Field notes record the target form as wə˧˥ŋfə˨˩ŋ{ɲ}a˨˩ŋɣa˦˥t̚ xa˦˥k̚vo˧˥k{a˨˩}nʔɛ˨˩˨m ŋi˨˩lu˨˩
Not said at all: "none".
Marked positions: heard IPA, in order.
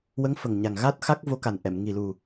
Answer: ɲ, a˨˩

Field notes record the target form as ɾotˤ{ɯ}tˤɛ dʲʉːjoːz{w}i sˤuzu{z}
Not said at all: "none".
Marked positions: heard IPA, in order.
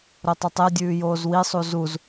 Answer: ə, w, z

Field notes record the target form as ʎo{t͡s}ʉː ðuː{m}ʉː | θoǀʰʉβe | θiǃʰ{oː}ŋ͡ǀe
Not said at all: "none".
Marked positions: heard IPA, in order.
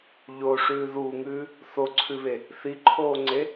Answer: ʂ, ŋ, oː

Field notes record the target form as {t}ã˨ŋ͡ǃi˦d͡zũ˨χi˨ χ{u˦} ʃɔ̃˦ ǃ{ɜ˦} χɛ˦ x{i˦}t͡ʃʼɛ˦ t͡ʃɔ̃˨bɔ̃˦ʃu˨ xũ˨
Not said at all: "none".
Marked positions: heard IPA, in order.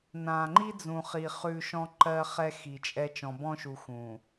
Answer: n, ʉ˦, ɜ˦, i˨

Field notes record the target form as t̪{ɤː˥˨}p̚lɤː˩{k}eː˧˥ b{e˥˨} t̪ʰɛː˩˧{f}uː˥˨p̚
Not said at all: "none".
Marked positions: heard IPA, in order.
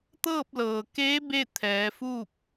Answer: ɤː˥˨, k, e˥˨, f

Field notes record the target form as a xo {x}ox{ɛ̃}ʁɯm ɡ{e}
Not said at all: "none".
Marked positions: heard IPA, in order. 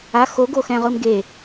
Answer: ɡ, ɛ̃, e

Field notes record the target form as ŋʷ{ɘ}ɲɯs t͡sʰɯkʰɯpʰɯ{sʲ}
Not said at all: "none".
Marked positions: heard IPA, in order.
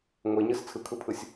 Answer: e, sʲ

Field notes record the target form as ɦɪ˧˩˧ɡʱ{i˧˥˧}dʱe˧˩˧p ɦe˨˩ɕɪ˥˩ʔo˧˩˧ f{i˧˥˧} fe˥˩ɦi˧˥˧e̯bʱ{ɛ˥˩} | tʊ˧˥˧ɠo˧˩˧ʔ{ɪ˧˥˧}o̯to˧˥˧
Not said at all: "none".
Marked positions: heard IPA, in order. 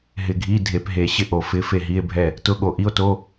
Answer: i˧˥˧, ɪ˧˥˧, ɛ˥˩, i˧˥˧

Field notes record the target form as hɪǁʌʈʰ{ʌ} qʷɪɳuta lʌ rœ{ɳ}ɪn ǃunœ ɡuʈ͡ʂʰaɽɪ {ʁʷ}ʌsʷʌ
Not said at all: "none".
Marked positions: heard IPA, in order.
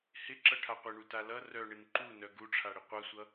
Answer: a, ɳ, qʷ

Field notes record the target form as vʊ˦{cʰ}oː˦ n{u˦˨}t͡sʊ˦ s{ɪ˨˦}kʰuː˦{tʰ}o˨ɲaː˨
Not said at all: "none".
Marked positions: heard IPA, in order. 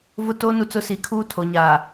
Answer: t, u˦, i˨˦, tʰ

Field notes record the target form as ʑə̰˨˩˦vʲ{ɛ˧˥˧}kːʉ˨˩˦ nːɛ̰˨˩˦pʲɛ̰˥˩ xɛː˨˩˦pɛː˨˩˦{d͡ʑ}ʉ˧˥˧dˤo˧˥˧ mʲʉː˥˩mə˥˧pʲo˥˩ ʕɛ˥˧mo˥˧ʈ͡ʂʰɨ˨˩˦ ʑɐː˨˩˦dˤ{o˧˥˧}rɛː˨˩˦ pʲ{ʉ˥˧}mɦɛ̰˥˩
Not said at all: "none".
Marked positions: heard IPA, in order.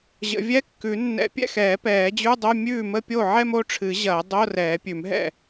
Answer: ɛ˧˥˧, d͡ʑ, o˧˥˧, ʉ˨˩˦

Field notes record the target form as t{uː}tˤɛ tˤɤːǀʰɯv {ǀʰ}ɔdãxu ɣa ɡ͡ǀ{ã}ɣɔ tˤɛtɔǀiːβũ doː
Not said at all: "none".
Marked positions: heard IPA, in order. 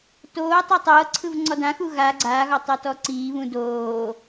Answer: oː, ŋ͡ǀ, a

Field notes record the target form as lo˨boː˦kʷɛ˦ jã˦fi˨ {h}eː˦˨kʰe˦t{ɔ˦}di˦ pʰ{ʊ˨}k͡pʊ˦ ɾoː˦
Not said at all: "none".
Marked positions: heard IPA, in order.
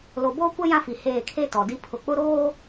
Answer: h, ɔ˨, ʊ˨

